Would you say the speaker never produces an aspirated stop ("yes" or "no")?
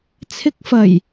no